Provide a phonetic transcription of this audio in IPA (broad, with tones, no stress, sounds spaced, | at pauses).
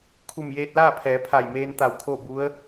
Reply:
kʰ u˧˩ m j eː˧ t̚ l aː˥˨ pʰ ɛː˩˧ pʰ a˧˩ j m eː˧ n t̪ a˧˩ w kʰ o˥˨ b u˧˥ ə̯